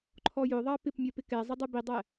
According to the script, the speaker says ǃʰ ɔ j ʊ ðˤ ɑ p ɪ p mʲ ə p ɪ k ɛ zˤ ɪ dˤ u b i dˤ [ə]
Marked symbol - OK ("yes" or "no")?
no